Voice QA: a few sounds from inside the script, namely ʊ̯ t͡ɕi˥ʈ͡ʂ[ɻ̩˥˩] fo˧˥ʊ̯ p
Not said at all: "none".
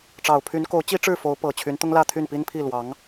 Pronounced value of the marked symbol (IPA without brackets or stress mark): ɻ̩˥˩